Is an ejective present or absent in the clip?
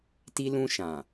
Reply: absent